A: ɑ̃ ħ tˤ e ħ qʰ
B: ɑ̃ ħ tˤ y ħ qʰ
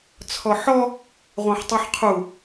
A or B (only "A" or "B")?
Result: B